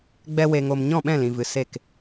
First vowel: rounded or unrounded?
unrounded